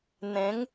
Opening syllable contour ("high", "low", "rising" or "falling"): rising